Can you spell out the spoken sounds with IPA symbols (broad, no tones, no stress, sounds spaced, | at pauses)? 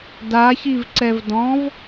d a ç i v ǀ ɛ v d ɔ̃ v